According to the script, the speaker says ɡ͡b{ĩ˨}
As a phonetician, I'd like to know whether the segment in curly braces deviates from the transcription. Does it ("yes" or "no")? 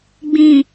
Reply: no